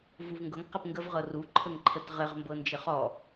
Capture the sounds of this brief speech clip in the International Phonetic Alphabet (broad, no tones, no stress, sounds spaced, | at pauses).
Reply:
v u v ŋ ɡ ɤ ŋ q ɘ p ŋ ɡ ə v ʁ ɤ r u ǃʰ ə ŋ ǃʰ ə t ʁ ɘ ʁ m b ɤ n d͡ʒ ɘ χ ɔ